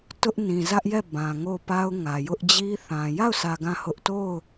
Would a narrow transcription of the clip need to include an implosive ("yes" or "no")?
no